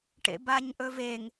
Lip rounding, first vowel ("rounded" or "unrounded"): unrounded